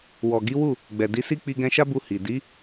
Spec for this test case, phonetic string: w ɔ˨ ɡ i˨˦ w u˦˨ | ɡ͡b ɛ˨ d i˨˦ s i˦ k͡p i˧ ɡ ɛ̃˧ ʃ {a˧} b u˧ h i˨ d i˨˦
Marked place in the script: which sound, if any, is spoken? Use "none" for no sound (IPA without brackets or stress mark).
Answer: a˦